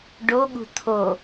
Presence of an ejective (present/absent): absent